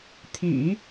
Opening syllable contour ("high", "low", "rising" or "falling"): low